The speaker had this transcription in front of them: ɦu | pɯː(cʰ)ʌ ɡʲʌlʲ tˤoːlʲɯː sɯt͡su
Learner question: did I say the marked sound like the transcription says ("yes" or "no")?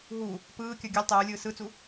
no